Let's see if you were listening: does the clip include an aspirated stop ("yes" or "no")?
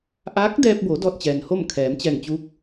yes